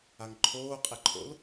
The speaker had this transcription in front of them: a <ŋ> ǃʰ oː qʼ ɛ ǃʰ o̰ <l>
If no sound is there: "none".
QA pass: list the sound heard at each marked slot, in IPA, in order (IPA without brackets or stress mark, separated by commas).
ŋ, l